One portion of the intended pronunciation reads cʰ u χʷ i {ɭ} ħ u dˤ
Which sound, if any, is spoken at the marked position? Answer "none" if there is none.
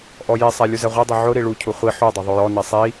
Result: none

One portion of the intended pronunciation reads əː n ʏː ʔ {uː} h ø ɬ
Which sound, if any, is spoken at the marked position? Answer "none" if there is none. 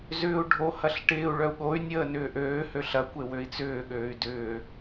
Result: øː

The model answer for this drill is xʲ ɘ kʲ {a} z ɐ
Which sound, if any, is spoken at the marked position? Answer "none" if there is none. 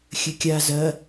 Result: a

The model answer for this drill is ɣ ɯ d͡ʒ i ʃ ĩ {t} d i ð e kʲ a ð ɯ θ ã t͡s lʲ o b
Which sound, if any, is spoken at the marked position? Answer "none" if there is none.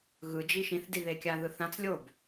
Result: θ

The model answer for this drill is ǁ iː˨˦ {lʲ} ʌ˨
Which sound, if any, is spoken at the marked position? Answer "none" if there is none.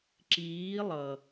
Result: lˠ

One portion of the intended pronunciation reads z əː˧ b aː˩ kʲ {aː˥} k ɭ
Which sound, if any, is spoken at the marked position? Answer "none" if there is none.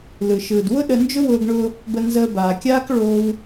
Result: aː˥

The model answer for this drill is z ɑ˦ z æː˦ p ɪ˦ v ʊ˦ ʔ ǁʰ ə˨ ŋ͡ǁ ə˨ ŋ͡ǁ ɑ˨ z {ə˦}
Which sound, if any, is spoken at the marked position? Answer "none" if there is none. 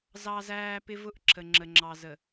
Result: ə˨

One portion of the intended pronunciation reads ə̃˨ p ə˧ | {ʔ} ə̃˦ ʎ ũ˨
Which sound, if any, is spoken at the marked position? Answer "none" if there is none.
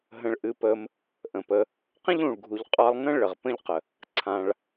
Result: q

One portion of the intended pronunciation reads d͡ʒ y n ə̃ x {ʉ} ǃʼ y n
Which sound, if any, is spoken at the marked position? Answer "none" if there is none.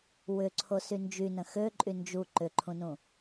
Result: ø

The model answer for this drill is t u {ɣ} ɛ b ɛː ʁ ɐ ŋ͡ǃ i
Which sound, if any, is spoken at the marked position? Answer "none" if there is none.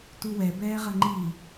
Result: w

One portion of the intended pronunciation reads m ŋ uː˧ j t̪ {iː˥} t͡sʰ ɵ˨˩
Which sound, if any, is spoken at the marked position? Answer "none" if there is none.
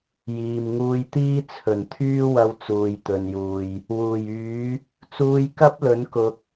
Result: iː˥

